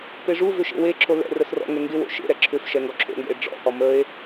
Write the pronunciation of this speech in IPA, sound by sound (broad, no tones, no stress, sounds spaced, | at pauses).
p e ʐ u v ʏ ʃ ḛ w e ǁʰ o l ɛ̰ r ə s r ɔ̰ ŋ ɛ ŋ ɡ ɪ w o̰ ʃ ḛ ɾ ɛ ǁʰ ʏ f ʃ ɛ ŋ ɡ ɔ ǁʰ o̰ ŋ ɡ ɛ̰ e̯ ɖ͡ʐ ɔ̰ h ɔ m ə e̯